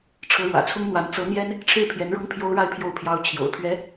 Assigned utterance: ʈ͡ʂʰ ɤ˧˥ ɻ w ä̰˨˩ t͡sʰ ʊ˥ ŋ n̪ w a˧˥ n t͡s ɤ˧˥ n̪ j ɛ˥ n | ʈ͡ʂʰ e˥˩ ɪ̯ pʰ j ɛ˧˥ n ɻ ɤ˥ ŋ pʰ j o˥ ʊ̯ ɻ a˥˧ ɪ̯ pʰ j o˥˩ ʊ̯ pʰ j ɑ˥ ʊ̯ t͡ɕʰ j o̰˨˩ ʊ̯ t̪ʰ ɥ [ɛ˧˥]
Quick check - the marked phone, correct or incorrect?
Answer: correct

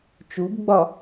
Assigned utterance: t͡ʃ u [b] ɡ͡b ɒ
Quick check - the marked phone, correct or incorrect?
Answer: correct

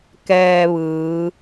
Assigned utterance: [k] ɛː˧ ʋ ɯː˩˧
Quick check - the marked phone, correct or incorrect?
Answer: correct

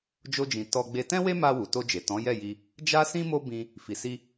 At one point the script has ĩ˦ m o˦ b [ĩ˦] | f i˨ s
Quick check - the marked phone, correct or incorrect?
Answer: incorrect: ĩ˧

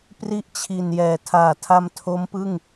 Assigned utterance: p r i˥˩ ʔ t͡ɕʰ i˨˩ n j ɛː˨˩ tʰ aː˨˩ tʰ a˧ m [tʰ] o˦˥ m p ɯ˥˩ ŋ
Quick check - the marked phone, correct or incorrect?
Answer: correct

